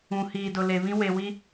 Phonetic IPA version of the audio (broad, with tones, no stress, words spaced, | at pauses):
ũ˨hiː˨ dʊ˨le˨βĩ˦ we˨wi˦